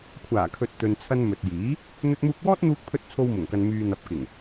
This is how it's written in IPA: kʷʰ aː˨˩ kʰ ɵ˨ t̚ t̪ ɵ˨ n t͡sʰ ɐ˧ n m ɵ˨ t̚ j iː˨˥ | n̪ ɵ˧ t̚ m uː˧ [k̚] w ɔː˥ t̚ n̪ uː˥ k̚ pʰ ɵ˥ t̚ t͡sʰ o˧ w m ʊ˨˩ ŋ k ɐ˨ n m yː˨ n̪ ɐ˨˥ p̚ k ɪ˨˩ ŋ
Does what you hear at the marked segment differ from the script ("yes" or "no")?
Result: no